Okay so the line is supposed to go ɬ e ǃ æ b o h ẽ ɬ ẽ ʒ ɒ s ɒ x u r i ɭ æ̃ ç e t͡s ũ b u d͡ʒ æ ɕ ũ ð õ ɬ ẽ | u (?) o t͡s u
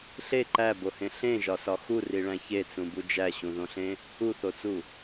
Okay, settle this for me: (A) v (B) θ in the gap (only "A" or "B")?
B